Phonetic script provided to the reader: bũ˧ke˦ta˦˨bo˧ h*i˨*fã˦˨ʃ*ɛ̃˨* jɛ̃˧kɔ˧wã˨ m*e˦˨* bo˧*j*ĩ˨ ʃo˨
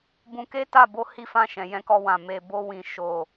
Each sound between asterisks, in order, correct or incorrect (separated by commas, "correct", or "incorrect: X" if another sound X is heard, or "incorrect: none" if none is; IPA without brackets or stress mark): incorrect: i˦, correct, incorrect: e˨, incorrect: w